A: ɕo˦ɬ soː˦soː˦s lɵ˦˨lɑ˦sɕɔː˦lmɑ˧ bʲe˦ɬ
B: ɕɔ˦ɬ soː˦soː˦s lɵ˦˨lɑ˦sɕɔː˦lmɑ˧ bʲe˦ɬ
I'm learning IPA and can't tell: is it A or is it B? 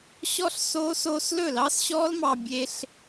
B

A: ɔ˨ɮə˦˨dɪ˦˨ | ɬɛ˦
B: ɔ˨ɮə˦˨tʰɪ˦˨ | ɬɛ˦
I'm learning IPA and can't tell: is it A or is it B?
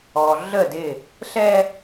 A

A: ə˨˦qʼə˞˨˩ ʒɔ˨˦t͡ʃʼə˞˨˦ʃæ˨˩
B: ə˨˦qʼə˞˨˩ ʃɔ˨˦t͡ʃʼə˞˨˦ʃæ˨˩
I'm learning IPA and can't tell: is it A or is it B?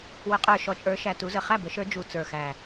B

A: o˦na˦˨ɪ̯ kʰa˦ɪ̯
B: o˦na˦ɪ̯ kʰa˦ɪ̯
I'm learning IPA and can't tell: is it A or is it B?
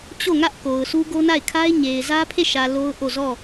A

